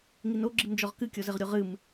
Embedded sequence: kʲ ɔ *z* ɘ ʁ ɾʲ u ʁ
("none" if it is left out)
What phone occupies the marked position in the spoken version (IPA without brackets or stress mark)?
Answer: z